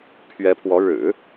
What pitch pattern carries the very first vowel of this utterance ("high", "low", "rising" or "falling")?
rising